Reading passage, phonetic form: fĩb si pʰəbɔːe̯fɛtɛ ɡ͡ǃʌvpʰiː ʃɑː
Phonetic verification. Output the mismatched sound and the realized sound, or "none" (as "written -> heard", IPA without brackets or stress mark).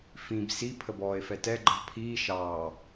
none